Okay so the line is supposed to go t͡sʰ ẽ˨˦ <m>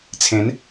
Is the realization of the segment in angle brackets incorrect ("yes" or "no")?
yes